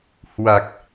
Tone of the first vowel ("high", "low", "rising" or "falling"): low